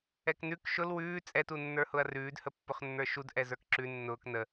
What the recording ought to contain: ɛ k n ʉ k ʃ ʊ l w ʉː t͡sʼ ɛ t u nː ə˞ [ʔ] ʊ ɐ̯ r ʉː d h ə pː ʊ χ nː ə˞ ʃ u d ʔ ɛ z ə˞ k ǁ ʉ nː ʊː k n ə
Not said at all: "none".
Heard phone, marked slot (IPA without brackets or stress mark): h